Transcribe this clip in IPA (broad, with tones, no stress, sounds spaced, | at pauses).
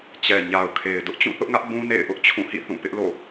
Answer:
t͡ɕ ɛ˨ ɲ a˨ ʊ̯ kʰ e˨ ɪ̯ d ʊ˦ ʔ t͡ɕ ũ˦˨ θ ʊ˦ ʔ ŋ ä˦ ʔ b ũ˦ n ḛ˦˨ ɪ̯ ʔ ʊ˦ ʔ t͡ɕʰ ũ˦˨ h ḭ˦˨ θ ũ˦˨ p ɪ˦ ʔ l o̰˦˨